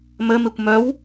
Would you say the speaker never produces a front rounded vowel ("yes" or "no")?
no